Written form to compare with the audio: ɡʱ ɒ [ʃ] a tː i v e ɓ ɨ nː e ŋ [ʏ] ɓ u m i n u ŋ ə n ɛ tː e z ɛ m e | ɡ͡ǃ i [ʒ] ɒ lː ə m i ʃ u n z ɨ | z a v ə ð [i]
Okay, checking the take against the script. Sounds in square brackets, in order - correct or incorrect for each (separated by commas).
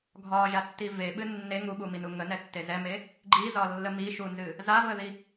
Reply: incorrect, incorrect, incorrect, correct